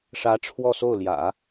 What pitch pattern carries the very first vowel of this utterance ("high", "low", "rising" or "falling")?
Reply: rising